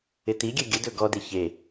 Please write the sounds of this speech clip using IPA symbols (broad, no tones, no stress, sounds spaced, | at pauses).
ɪ t i ɡʲ ɛ ɡʲ ə d ɵ ɡ ɔ d e ç e